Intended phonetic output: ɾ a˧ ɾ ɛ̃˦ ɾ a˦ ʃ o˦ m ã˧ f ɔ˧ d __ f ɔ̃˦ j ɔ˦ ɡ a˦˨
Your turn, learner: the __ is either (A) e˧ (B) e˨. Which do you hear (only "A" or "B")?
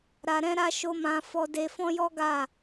A